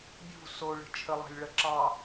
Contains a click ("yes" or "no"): yes